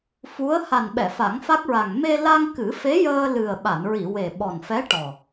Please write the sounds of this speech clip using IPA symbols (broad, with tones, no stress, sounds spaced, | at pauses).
f u˧˥ ə̯ h a˨˩ n ɓ ɛ˨˩˨ f a˨˩˦ ŋ f a˦˥ k̚ ɹ a˨˩ ŋ m e˧ l a˧ ŋ k ɨ˨˩˦ f e˧˥ j əː˧ l ɨ˨˩ ə̯ ɓ a˨˩˨ n ɹ i˨˩˨ w e˨˩ ɓ ɔ˨˩ n f ɛ˧˥ ʈ ɔ˨˩